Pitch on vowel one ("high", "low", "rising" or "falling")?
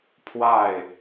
falling